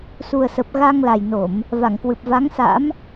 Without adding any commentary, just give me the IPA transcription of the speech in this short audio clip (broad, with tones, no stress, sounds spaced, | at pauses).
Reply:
s u˨˩ ə̯ s ə˨˩ p̚ ɣ a˧ ŋ l a˨˩ j n o˧˩˨ m | v a˧˩ ŋ k w ɨ˨˩ p̚ v a˨˦ ŋ s a̰˧˥ m